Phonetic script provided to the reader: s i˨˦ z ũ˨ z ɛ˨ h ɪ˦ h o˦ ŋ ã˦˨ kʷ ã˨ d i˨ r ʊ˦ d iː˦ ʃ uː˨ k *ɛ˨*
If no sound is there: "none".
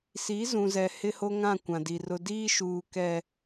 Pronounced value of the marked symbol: ɛ˨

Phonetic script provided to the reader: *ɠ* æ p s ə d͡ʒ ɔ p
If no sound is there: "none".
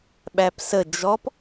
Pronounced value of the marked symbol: ɓ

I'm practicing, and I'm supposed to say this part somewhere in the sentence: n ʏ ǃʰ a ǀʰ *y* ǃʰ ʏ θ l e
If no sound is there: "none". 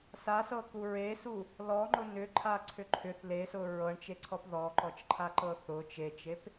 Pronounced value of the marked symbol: ʏ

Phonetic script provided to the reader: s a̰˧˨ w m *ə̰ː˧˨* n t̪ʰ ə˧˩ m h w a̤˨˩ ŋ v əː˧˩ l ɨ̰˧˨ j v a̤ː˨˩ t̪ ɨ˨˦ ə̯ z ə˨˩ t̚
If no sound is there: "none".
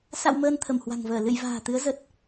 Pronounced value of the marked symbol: əː˧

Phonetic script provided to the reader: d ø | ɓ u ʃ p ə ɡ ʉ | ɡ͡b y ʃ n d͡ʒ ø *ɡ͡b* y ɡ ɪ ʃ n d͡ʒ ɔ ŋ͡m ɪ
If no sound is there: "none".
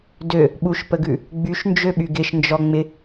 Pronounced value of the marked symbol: ɓ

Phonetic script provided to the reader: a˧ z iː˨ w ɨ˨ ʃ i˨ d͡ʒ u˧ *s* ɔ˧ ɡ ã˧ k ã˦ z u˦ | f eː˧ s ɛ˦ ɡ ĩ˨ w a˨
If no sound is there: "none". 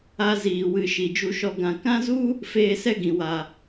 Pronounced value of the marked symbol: ʃ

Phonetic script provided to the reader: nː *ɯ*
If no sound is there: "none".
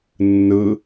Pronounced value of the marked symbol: ɯ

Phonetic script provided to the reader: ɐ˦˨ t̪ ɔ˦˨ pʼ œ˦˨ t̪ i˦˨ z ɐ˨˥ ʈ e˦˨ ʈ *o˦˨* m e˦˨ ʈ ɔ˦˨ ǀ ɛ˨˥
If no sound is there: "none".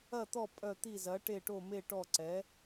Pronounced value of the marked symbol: o˦˨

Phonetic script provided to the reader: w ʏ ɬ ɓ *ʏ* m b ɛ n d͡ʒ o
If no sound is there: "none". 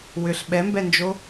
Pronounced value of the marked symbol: ɛ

